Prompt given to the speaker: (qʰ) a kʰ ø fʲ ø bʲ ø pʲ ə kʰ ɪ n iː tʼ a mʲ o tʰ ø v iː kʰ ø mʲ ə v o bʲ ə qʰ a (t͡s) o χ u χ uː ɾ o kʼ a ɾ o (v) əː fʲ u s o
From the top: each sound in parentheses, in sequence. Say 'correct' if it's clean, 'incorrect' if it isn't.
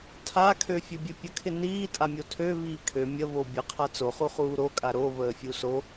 incorrect: tʰ, correct, correct

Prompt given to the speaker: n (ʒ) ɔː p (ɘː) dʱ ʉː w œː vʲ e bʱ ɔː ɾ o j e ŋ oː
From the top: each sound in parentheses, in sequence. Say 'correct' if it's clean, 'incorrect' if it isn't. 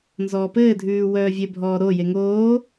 incorrect: z, correct

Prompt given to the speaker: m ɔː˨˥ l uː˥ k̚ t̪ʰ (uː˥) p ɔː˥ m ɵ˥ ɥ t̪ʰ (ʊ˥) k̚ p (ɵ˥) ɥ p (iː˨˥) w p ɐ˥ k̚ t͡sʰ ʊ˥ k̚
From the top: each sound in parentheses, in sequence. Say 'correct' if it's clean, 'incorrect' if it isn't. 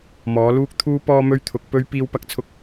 correct, incorrect: ʊ˨˥, correct, incorrect: iː˥

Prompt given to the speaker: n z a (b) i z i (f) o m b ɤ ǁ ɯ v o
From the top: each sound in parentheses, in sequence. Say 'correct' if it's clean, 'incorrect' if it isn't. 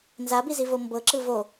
correct, incorrect: v

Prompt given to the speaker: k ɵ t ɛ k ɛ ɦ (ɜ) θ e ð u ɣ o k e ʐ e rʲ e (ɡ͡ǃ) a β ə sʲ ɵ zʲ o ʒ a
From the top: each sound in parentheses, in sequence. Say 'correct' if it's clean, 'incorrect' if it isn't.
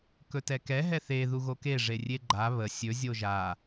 incorrect: ɛ, correct

